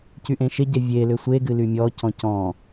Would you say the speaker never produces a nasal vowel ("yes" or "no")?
no